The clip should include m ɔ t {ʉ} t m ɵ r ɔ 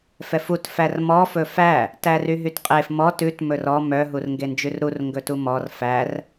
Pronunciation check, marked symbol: correct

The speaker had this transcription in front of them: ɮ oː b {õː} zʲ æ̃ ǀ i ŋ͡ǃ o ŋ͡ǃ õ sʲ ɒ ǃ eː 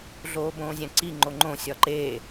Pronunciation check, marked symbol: correct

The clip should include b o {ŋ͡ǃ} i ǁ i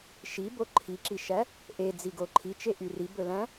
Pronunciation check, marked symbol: incorrect: ǃʰ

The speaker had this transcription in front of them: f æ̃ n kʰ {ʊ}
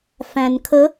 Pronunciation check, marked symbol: incorrect: ə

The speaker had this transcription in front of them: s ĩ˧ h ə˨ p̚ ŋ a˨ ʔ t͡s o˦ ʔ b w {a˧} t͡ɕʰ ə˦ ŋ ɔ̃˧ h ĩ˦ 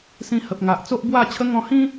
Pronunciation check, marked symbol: incorrect: a˥˧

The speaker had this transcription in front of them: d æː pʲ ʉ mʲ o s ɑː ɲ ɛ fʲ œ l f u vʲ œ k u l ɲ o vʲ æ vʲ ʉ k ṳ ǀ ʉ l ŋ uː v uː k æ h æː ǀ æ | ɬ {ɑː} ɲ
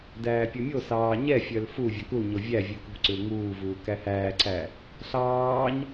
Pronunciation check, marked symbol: correct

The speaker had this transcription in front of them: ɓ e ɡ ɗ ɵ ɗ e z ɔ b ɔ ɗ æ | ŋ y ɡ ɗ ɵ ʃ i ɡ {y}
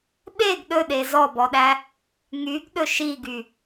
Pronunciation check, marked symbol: correct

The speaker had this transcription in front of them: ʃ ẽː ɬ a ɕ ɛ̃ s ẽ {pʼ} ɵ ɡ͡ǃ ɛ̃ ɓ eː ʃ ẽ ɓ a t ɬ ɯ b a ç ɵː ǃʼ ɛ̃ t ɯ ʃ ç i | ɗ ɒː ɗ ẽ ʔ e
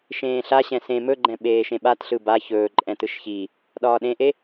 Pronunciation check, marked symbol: incorrect: m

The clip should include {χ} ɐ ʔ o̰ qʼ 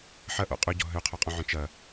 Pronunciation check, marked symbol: incorrect: ħ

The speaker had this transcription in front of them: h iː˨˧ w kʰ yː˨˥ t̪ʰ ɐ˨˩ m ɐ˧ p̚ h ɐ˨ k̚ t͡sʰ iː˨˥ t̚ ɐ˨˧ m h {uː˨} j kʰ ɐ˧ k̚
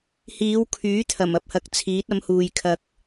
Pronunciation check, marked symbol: correct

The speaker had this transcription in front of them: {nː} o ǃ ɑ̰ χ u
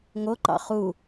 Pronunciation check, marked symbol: incorrect: ŋ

